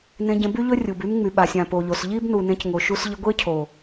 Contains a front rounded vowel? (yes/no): yes